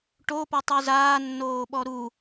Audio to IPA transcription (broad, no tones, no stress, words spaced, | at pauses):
ʈopɔ tˤyzaː nːoːɓɔɾu